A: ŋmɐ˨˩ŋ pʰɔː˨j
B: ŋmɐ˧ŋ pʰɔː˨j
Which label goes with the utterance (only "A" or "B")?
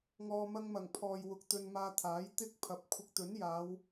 A